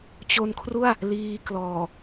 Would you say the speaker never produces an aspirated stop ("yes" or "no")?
no